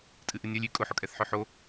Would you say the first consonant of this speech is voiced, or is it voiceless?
voiceless